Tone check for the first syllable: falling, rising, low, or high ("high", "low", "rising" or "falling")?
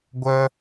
high